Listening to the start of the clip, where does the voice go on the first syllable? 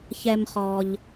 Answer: low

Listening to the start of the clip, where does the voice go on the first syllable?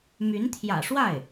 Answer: rising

